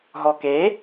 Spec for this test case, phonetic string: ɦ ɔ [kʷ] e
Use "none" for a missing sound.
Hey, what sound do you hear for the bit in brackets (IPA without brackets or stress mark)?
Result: k